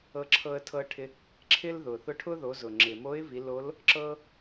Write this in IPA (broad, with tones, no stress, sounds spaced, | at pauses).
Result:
ɤ˧ ǁʰ ɤ˧ ə̯ tʰ ɤ˧ ʈʰ ɪ˧ | ǁʰ ɪ˥ l ð ʊ˩ θ ʊ˧˥ ʈʰ ʊ˥ ð o˩˧ z ʊ˩ ŋ͡ǁ ɪ˩ m o˧˥ ɪ̯ v i˩˧ l o˧˥ l | ǁ ɤ˥